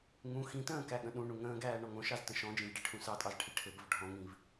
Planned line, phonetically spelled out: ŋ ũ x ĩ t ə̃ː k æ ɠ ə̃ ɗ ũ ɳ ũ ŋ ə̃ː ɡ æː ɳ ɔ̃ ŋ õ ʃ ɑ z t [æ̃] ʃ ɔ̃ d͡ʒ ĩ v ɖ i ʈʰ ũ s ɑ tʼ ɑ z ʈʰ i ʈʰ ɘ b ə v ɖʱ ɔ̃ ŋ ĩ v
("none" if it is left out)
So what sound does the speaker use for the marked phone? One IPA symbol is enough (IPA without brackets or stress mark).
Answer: ə̃